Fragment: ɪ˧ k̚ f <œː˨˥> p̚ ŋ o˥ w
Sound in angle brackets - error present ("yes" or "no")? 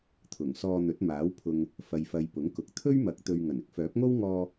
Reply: no